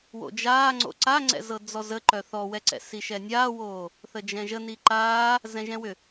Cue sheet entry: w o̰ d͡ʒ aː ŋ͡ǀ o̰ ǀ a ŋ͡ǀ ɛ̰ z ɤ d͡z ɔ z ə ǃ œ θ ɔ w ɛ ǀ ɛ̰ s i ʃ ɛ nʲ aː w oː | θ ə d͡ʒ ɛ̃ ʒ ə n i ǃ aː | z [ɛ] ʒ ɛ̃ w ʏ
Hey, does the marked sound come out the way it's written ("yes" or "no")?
no